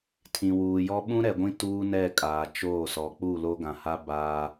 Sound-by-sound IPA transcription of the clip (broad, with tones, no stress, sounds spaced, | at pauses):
tʰ ĩ˨ w uː˨ j ɔ˦ ɓ ũ˦ ɾ ɛ˨ ɡʷ ĩ˦ t uː˦ n ɛ˦˨ kʼ aː˨ t͡ʃ oː˦˨ s ɔ˨˦ k͡p u˦˨ l o˦ ɡ ã˨ h a˦ b aː˦